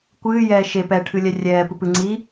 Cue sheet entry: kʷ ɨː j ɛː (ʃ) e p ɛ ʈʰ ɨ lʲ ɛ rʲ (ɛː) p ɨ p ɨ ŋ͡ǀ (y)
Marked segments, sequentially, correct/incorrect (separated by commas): correct, correct, incorrect